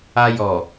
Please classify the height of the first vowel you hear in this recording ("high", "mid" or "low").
low